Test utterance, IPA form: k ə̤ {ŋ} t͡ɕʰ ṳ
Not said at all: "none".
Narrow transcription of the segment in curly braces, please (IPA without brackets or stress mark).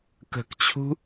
k